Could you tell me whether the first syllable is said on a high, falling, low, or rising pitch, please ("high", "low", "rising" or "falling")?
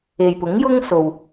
low